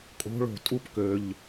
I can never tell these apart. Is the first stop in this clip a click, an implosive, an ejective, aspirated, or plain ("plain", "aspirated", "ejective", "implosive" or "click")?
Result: ejective